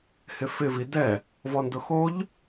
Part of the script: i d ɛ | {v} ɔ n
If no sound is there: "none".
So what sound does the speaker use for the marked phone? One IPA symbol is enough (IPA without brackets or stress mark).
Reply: v